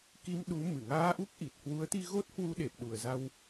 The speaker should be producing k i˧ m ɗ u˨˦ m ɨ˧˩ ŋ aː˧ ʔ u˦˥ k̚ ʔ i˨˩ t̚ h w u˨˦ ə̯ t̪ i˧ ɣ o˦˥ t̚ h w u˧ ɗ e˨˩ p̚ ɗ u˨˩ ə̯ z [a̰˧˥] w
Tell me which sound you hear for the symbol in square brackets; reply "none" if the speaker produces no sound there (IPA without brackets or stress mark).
a˧